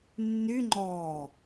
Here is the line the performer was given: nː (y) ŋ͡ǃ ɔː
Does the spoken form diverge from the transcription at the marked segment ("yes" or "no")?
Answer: no